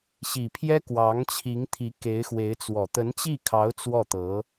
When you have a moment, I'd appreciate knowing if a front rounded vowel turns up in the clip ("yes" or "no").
no